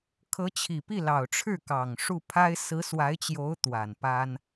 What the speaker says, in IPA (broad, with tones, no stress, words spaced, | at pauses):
kʰɤ˧˥t͡ɕʰi˨˩ pi˥˩lɑ˨˩ʊ̯ʈ͡ʂʰɻ̩˥˩ kɑ˨˩ŋ ʂu˥˩pʰa˥ɪ̯ sɹ̩˧˥swa˧˥ɪ̯t͡ɕjo˧˥ʊ̯ t̪wa˨˩npa˥n